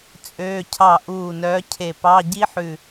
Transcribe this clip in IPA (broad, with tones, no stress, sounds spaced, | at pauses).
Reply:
t͡sʼ øː˧˥˧ cʰ ɑ˥˩ ʔ uː˥˩ n œː˧˥ cʰ e˧˩ p ɑ˧˥˧ ɟ i˥ ħ ʉ˧˩